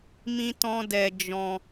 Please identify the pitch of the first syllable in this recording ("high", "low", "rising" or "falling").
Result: high